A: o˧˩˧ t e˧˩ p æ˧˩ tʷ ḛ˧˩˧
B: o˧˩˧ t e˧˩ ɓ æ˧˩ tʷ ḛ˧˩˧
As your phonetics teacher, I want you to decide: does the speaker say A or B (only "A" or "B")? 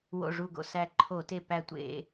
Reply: A